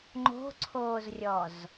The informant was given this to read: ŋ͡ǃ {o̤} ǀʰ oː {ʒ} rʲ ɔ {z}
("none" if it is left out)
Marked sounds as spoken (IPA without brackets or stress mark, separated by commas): o̤, z, z